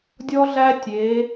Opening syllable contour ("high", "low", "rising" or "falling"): high